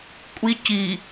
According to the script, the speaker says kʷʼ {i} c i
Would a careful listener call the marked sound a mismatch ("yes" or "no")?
no